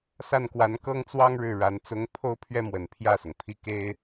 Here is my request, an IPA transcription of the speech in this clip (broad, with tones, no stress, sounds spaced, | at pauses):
s a˥˩ n k w a˧˥ n k ɤ˥ ŋ t͡s w ɑ˥ ŋ ɻ ɻ̩˥˩ ɻ a˧˥ n t͡s ʊ˧˥ ŋ pʰ o˥ ʊ̯ pʰ ɥ ɛ˥ m w ə˨˩ n pʰ j ä˥˩ s ʊ˩ ŋ pʰ i˥˩ k e˥ ɪ̯